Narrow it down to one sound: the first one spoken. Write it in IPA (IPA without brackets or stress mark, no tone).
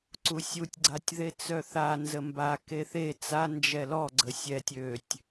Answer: ǀ